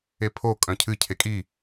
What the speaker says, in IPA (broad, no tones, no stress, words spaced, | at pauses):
epʰo kʼœ̃cʰɨ cʰekʼi